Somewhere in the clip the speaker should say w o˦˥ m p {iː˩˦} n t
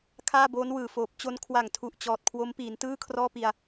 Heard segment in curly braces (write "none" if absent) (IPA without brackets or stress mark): iː˩˦